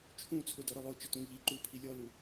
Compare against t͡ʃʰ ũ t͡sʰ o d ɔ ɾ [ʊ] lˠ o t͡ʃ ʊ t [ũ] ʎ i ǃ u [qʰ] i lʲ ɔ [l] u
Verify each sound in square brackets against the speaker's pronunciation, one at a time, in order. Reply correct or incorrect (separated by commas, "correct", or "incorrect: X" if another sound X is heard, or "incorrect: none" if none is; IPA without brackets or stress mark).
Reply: correct, correct, incorrect: pʰ, correct